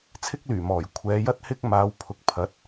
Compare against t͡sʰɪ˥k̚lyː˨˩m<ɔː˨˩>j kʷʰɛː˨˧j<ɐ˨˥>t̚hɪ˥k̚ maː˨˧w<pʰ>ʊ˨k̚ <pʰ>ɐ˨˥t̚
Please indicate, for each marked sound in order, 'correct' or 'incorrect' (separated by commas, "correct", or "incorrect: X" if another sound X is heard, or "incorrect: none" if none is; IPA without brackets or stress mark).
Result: correct, incorrect: ɐ˥, correct, correct